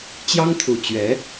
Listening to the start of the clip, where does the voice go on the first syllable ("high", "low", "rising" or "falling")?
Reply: high